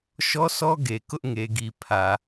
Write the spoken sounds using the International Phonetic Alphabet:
ʃɔ˦sɔ˦ ɡe˨ kʊ˦ʔŋe˨ɡi˨ pʰä˨

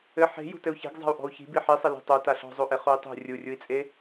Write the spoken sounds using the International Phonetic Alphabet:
ɘ ħe̤ jṳtɘu̯çe̤ɡ zˤa̤u̯ʔɔ̤u̯çi̤ biħisˤɘ li̤tˤo taɬɔ̤zˤoʔe χui̯tˤṳ rʲurʲui̯t͡sʼe

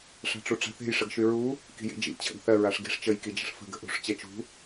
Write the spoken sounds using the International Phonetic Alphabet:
ʂa̤ʈ͡ʂuʈ͡ʂa̤θe̤j ʂəɡʃyɹu | ki̤jḭd͡ʒḭ t͡ɕʰə̰ɡθɜ ɹaʂɡi̤ʂ t͡ʃəj kid͡ʒə̤ʂfə̤ ɡə̤ʔṳʂ t͡ɕɜt͡ʃṳ

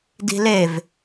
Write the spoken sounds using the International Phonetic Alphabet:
di̤lev

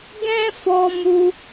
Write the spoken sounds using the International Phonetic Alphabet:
ɡɛ̃˦fɔ˧ mu˧

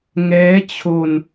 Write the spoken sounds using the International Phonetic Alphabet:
ŋɛː˦˥t͡ɕʰo˧n

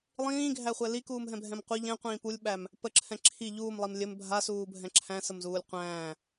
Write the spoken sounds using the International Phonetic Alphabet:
lˠĩːɡʱæχʷɛ likuːmɦɛ̃bʱɛ̃m qʷə ʎɛ̃qʷĩː pulʲɓæm | pəǁʰɛ̃ ǁʰi ʎuːmlˠim lʲɘm bʱasuːbʱɛ̃ ǁʰæ̃səmzuːlʲ qʷæ̃ː

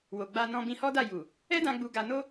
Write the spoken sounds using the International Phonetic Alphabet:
wo˨ ɡ͡ba˧nɔ̃˧ bĩ˧hɔ˦da˦˨ ju˨ | ɛ˦dã˧ ɡ͡bu˧ ɡa˧no˦

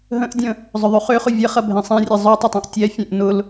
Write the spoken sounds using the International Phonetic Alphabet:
ɦə̃ʔdʲə̃ | zˤʊðˤʉχøχʊ vʲɐχɐ bʱẽsˤɛ̃rʲe zˤøtˤʊtˤɛ̃ʔ tʲɛfʲẽʔ nʊl

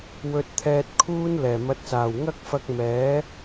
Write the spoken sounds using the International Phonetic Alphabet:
wɵ˧t̚t̪ʰɛː˧t̚kʰuː˥n lɛː˨˩mɐ˨˥t̚ saː˨˩wŋɐ˥k̚fɐ˧k̚ mɛː˨˥

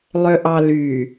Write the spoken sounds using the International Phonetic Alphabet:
lˠøʔɑly

